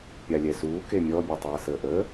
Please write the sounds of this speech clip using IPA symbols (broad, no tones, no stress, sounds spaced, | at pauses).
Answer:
pʲ a lʲ ɛ s uː k e mʲ ɔ bʲ ɛ tˤ ɛː s əː ʔ əː